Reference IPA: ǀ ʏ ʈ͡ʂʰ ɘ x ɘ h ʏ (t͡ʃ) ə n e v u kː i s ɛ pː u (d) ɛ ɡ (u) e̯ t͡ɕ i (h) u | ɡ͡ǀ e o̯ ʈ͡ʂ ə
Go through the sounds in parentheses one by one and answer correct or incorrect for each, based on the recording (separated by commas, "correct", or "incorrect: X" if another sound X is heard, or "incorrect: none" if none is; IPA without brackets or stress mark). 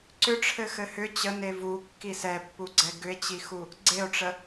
incorrect: t͡ɕ, incorrect: ɡ͡ǀ, incorrect: ʏ, incorrect: x